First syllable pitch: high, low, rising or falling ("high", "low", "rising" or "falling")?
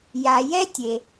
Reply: low